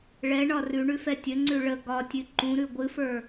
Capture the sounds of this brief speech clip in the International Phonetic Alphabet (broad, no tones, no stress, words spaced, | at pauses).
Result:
ɭɛɳɒ rʉɳʉfɛ tʲəŋ͡ǀʉ ɭə ɡɒtʲɨ ǃũɾʉ ɡʷɨfə˞